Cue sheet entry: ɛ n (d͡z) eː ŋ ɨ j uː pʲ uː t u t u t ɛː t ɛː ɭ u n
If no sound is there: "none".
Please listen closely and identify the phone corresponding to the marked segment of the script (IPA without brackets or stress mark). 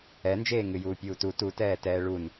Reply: d͡ʒ